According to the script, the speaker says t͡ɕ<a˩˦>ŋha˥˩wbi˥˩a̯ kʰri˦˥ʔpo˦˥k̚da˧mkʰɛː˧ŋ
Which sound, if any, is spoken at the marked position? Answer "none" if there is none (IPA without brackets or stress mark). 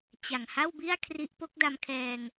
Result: a˨˩